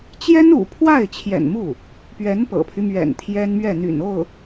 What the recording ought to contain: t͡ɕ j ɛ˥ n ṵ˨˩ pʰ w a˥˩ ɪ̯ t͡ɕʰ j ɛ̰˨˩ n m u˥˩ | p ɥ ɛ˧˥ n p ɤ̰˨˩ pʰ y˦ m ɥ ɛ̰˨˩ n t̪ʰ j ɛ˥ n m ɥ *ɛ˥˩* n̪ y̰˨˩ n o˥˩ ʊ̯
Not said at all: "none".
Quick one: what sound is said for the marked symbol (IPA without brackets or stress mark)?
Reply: ɛ˥˩